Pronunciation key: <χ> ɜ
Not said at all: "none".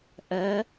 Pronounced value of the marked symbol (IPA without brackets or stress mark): ʔ